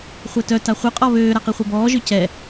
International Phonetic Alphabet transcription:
χʷ ɛ t œ t a χʷ ə qʼ ɔ β øː ɾ a q i χʷ œ b ɔː ʒ ø c ɛ

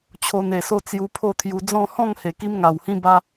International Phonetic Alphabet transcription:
t͡ɕʰ o˧ n e˨˩ s o˦ t͡s j u˧ pʰ o˥˧ t̪ʰ j u˧ d͡z ɔ̃˥˧ h ɔ̃˥˧ ŋ h e˨˩ k i˧ m ŋ a˨˩ w h ĩ˧ b a˧

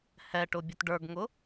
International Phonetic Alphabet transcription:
h ɛ ʈ ʊ bʲ ʊ t ɖ ə˞ ɡ ŋ ʊ

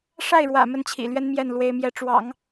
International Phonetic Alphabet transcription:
ʂ a˥˩ ɪ̯ ɻ w ä̰˨˩ m ə˥˩ n t͡ɕʰ ḭ˨˩ l ɥ ɛ˥ n m j ɛ˥˩ n l w e˧˥ ɪ̯ m j ɛ˧˥ ʈ͡ʂ w ɑ̰˨˩˦ ŋ

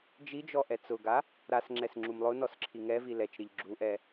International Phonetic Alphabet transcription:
d͡ʒ i d͡ʒ ɔ ʔ ɛ t͡s ʊ ɡ a | ɾ a s ŋ͡ǁ ɛ s ŋ͡ǁ u m lˠ ʊ n ɔ s ǁʰ i ŋ ɛ v i l ɛ t͡ʃ ɾ i ʎ ɡ͡ǁ u ʔ ɛ

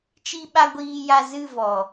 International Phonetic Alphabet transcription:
t͡ʃ i˧ ɓ a˧ ɡʷ iː˧ j a˧ z ɨ˦˨ v ɔ˨

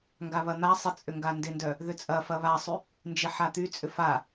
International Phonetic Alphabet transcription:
ŋ ɡ a β ɐ n̪ a sˤ ɪ t͡sʼ ʏ ŋ ɡ a n d ɪ n d œ | ð ʏ t͡sʼ ɐ f ɐ β a sˤ y | n d͡ʒ ɪ ħ a t̪ y t͡sʼ ʏ f a

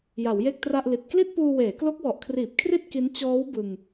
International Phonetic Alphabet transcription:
j a˩˦ w j e˥˩ k̚ t r a˥˩ ʔ l i˨˩ t̚ k l i˥˩ t̚ p uː˧ w eː˩˦ k l o˦˥ k̚ w ɔ˨˩ ʔ kʰ r iː˨˩ p̚ kʰ r i˥˩ t̚ k i˦˥ n t͡ɕ ɔː˦˥ w b ɯ˧ ŋ

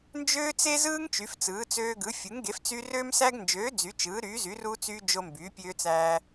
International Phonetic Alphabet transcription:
n d͡ʒ øː˦ t͡s e˦ z ɯː˦ ŋ t͡ʃ y˨˥ f t͡s ɯː˨˥ t͡s øː˦ ɡ ɯ˨˥ fʲ u˨˥ ŋ ɡ e˨˥ f t͡s y˦ r øː˦ m s æ˦ ɡ n d͡ʒ øː˨˥ d͡z y˨˥ t͡ʃ ɯː˨˥ ɾ yː˨˥ z y˨˥ r u˦ t͡s yː˦ d͡ʒ o˦ m b yː˨˥ pʲ øː˦ t͡s æː˦

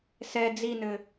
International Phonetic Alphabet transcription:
s ɛ d͡z i n ɘ

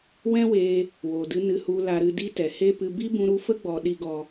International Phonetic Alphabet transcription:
w ɛ̃˦ w eː˧ | w oː˨ d ɨ˧ n ɨ˧ h u˧ l a˧ ɾ ɨ˧ d i˦ t ɛ˨ h eː˦ p ɨ˧ b i˦ b ũ˧ ɾ u˧ f ə˦ ɡ͡b ɔ˧ ɗ i˦ ɡ ɔ˧

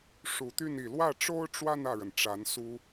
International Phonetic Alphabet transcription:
ʂ u˨˩ t̪ y˥˩ n i˨˩ l w ä˥˩ ʈ͡ʂ o˥ ʊ̯ ʈ͡ʂ w a˥˧ n ä˥˩ ɻ ə˩ n ʈ͡ʂ a˧˥ n s u˥

